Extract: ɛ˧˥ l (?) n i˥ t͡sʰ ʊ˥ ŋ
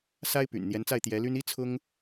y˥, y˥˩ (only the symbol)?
y˥